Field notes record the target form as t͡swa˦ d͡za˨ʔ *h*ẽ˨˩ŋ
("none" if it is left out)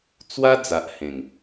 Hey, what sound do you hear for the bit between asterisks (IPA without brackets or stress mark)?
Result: h